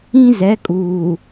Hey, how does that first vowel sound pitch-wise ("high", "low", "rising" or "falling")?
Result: high